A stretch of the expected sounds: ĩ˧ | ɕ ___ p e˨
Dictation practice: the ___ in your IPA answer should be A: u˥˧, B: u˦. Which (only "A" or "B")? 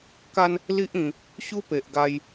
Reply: B